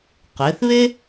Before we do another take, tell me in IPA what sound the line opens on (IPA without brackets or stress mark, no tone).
q